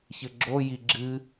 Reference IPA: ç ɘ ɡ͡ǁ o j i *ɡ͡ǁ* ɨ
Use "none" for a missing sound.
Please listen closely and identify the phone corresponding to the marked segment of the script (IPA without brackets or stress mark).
ɡ͡ǁ